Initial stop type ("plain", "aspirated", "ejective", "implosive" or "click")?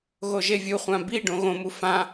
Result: plain